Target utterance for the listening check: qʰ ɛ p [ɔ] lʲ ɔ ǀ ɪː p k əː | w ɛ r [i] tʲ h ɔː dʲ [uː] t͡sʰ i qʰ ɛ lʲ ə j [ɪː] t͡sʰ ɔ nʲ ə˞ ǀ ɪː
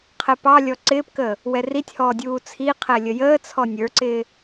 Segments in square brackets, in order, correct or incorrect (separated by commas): incorrect, correct, correct, incorrect